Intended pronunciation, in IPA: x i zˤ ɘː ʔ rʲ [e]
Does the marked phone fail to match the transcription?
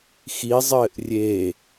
no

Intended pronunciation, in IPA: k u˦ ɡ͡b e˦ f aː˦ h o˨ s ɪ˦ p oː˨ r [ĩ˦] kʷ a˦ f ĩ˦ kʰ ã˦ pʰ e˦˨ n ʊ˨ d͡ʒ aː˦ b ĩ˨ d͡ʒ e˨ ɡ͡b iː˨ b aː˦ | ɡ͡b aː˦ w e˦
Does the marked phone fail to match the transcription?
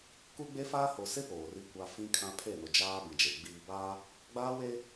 yes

